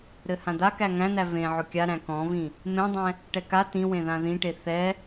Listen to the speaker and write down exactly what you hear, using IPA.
ɾ ɘ h ã d̪ a k æ ŋ æ̃ n̪ æ v ẽ ʕ ʊ kʲ a ɾ æ̃ k ɔ̃ v ĩ | m ẽ dˤ ɛ̃ | ʈ ɛ k a t ĩ w ẽ ð ã ð ĩ ʈ e θ ɛ

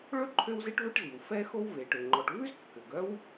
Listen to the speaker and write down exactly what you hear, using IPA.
ɭ ɵ˥ ǃʰ ø˥ w z e˥ ʈ v œ˥ ʈ z i˩ w f ɛ˥ x o˥ w v e˩ ʈ ø˩ ŋ͡ǃ ɔ˩ ʈ v ʉ˥ z kː ø˩ ɡ œ˥ w

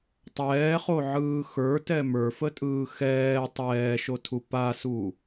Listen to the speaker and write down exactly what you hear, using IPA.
tˤ ɛː χ o ʕ ɯː x ə˞ t ɛ m ə˞ f ə tʼ ɯː x ɛː tˤ ɛː ʃ o tʰ u p a s u

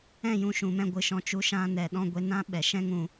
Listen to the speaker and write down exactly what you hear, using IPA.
ɛ̃˦˨ j ũ˧ ʃ ũ˨ m ɛ̃˧ ɡʷ ɨ˨ ʃ ɔ̃˧ t͡ʃ u˧ ʃ ã˧ n ɛ˨ ɗ ɔ̃˧ ɡʷ e˧ n ã˦ ɓ ɛ˨ ʃ ɛ̃˦ ŋ ũ˧

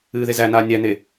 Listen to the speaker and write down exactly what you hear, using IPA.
ɨː ð e z æ n aː nʲ æ n e

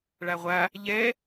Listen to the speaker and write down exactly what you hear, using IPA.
ɭ a ʁʷ a | ʎ ɛ

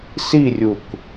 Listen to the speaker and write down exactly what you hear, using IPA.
s i rʲ u k

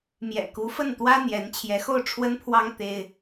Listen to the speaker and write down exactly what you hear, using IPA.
m j ɛ̰˨˩ k u˧˥ f ə˥˩ n t̪ w ä˥ n̪ j ɛ˧˥ n t͡ɕʰ j ɛ˧˥ x o˥˩ ʊ̯ ʈ͡ʂʰ w ə˥ n pʰ w ɑ˥ ŋ t̪ e˥ ɪ̯

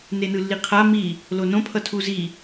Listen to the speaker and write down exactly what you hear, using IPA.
n e n ɯ lː i qʰ a m i | l o n õ pʰ ʌ tʰ u z i

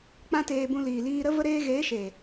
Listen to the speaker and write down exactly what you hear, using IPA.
k͡p ã˦ t eː˧ b ũ˧ l iː˨ l iː˧ ɾ ə˦ v ə˦ ɾ eː˦ ɣ eː˨˦ ʃ eː˨

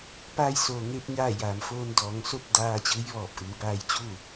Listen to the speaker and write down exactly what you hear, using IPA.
p aː˧ j s oː˩ ŋ e˧ p̚ ɲ aː˥˨ j aː˩ m f oː˧ n d ɔː˩˧ ŋ s o˥˨ p̚ d aː˧ t͡ɕ ɯː˧˥ j ʋ ɔː˧˩ p̚ ʔ ɯː˩˧ b aː˧ j t͡ɕ uː˥˨

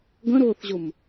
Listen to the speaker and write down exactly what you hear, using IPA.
ɡ ə̃ ɾ ʊː θ ʑ ʊ m

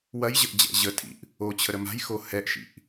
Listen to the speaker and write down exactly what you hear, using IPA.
w ɐ j ʑ ə ʔ d͡ʑ ɛ̰ ʑ ə tʰ ḭ ʔ | o t͡ɕʰ ə ɾ ə m a̤ j x o h ɛ ʔ ʃ ḭ ʔ

